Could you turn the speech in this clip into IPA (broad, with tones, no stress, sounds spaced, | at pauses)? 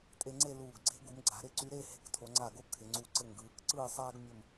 tʼ e˧ ŋ͡ǀ e˥˧ l uː˧˩ ɡ ɡ͡ǀ e̤˥ ɡ u˩˧ m ɡ͡ǀ a̤˩˧ ɾ ɪ˧˩ ǀ y˧ ɾ e˥˧ h e̤˧ k tʰ o˩˧ ŋ͡ǀ a˧˩ ɡ o˥ kʰ ɪ˩˧ ŋ͡ǀ u˧˩ ǀ ɘ˧˩ ŋ ɡ ɯː˩˧ k ǀ ɯː˥˧ sˤ aː˥ ɡ mʲ ɘ˥˧ m